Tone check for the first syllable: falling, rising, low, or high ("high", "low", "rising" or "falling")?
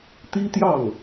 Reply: high